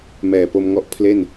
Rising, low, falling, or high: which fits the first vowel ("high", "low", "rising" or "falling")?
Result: low